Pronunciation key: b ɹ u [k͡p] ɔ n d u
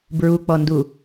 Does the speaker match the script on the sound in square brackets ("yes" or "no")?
yes